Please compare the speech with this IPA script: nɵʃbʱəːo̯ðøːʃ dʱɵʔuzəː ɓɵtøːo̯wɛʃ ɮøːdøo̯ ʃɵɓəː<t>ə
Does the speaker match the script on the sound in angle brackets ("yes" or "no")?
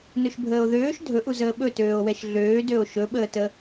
yes